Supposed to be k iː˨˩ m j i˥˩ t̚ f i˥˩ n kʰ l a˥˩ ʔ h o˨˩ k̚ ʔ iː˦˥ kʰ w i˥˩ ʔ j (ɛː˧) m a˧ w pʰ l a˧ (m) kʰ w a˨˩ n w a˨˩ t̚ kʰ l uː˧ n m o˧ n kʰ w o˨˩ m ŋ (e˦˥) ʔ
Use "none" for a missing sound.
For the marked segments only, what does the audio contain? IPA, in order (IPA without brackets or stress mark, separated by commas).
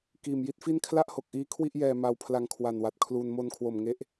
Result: ɛː˧, ŋ, e˦˥